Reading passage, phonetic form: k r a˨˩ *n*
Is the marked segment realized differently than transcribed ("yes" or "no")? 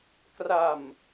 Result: yes